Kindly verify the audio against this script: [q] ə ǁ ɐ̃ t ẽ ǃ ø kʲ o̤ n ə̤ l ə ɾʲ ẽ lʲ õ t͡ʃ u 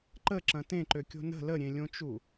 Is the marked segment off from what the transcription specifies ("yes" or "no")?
yes